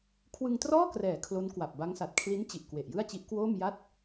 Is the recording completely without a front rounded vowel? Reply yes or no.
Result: yes